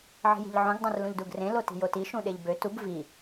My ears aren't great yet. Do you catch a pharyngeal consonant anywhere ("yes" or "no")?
yes